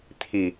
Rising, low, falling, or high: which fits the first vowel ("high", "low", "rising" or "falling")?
low